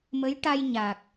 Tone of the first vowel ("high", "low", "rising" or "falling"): rising